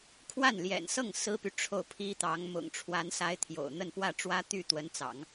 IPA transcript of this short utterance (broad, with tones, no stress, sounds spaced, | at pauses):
kʰ w a˥˩ n l j ɛ̰˨˩ n s ɤ˥˩ ŋ s ɹ̩˥ p y˨ ʈ͡ʂʰ o˥˩ ʊ̯ pʰ i˥ t̪ ɑ˧˥ ŋ m ʊ̰˨˩ ŋ ʈ͡ʂʰ w a˧˥ n s a˧˥ ɪ̯ t̪ʰ j o̰˨˩ ʊ̯ n̪ ə˥˧ n p w ä˥˩ ʈ͡ʂ w ä˥ t̪ y˥˩ t̪ w ə˧˥ n t͡s ɑ̰˨˩˦ ŋ